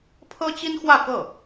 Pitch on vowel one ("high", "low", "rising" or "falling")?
high